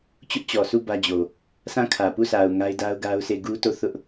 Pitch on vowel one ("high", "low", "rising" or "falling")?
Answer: high